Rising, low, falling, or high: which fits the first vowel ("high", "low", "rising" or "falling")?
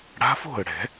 rising